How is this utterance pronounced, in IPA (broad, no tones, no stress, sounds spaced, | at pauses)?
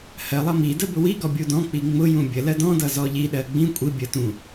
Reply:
h ɜ lˠ ʌ m i d ə b ʊ w i ɡ ɔ bʲ u d ɔ̃ k͡p i ŋ͡m ʊ j ũ bʲ ə l ɜ d ɔ̃ d ʌ z ɔ ʎ i ɗ ɜ ɡ͡b ĩ kʷʼ i bʲ ə t ũ